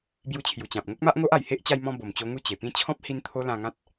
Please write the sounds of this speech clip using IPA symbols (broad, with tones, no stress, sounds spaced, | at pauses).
b j u˧ t͡ɕʰ j u˨˩ t͡ɕ ã˨ p̚ ŋ o˦ k̚ m a˦ ʔ ŋ o˦ ʔ a˨˩ j h e˦ ʔ t͡ɕ a˧ j m ɔ̃˧ b o˨˩ m t͡ɕ o˧ ŋ u˧ t͡ɕ e˨˩ p ĩ˥˧ t͡ɕʰ ɔ̃˦ p̚ h i˧ n t̪ʰ o˧ l ã˧ ŋ ã˦ t̚